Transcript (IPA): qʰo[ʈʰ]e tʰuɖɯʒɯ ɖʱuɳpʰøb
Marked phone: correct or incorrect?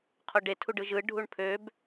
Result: incorrect